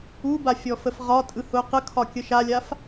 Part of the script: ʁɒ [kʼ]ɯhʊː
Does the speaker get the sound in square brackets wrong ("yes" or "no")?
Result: yes